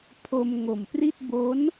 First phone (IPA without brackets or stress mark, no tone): pʰ